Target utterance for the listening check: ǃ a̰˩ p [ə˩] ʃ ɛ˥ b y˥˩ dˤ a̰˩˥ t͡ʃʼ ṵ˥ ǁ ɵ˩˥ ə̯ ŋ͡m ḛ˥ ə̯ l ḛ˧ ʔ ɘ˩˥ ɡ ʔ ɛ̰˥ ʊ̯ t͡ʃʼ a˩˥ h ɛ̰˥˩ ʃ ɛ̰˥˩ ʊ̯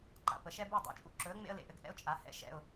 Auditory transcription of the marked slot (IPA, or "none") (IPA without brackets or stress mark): ə˩